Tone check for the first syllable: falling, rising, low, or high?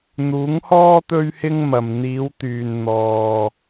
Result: rising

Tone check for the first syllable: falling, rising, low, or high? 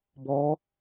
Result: rising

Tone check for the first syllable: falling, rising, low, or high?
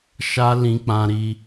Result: high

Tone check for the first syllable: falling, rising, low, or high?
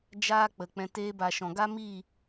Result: high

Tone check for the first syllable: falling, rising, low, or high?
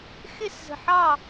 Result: falling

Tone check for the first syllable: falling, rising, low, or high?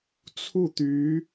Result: falling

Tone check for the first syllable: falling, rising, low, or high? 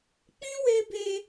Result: high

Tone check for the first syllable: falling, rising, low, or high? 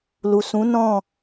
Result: low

